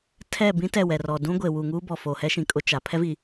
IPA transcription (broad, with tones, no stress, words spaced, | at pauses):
tʰɛ˦˨bĩ˦ tɛ˦˨wɛ˨rɔ˨ dũ˦ ɡʷe˨ wu˨ŋuː˦ bɔ˨foː˨hɛ˦ʃĩ˨ kʼʊ˦t͡ʃa˨ pʰɛ˦vi˨